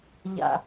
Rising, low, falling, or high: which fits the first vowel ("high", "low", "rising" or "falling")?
low